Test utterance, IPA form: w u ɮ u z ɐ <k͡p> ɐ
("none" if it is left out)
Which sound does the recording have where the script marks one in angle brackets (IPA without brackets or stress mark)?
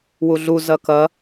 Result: k